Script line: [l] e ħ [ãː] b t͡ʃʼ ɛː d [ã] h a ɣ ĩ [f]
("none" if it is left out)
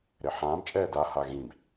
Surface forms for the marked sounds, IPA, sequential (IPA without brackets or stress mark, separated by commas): ɾ, ãː, a, b